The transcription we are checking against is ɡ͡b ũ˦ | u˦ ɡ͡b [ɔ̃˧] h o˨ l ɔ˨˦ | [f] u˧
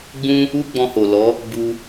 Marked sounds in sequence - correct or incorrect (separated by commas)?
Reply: correct, incorrect